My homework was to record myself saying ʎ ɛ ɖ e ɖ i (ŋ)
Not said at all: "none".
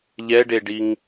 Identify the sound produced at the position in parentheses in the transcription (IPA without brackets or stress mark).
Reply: ŋ